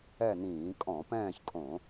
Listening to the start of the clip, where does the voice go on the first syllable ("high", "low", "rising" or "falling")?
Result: falling